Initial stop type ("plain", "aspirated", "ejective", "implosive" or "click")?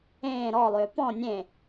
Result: plain